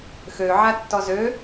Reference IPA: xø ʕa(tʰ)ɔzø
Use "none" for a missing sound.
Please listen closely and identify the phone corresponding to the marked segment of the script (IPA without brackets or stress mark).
tː